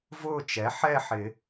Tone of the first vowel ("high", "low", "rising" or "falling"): falling